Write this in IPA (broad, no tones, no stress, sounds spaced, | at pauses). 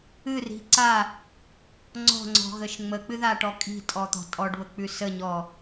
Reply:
ɨ r i̤ ǀ a | ŋ͡ǀ ɔ̤ ŋ͡ǀ ɔ̤ ɣ ə ʃ ŋ͡m ə k͡p ɨ ð a ʈ ɔ kʼ i̤ tʼ ɔ t̪ ɔ̤ tʼ ɔ ɖ β ə k͡p ʉ s ə ɲ ɔ